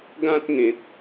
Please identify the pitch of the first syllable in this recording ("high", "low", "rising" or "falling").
high